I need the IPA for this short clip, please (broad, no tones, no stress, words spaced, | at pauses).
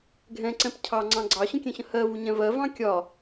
ɡʱɛ̃ǀɛ̃p cʰɑŋ͡ǀɑ̃ ɡ͡ǀɑɕə̃kʲɛ̃ɕə̃ hɜvuɲɛ̃ vɜvɑ̃ kʲɒ